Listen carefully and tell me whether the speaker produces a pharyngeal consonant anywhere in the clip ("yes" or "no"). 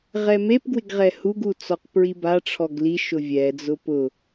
no